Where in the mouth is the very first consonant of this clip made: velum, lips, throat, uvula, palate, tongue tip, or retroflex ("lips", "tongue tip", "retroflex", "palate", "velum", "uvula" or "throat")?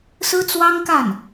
tongue tip